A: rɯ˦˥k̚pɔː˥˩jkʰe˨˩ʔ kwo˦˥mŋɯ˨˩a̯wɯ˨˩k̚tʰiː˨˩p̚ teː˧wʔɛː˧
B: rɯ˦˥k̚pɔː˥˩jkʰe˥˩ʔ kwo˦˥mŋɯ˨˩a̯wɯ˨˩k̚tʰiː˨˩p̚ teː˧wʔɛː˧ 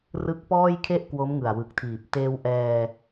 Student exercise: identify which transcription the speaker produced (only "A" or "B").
B